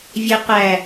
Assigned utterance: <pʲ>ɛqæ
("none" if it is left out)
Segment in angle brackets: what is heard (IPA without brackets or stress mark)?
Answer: vʲ